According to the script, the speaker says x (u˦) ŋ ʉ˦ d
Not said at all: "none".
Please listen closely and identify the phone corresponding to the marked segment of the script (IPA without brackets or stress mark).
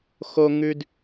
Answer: o˦